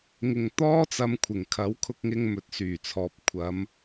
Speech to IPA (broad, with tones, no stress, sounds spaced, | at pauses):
ŋ ɪ˨ ŋ t̪ ɔː˥ t͡s ɐ˨˧ m kʷʰ ɪ˨˩ ŋ kʰ ɐ˨˥ w kʰ ʊ˧ k̚ ŋ ɪ˧ ŋ m ɵ˨ t̚ s yː˨˩ t͡sʰ ɔː˨ p̚ kʷʰ ɐ˨˧ m